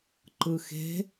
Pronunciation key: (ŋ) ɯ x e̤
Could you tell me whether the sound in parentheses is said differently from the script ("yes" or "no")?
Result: yes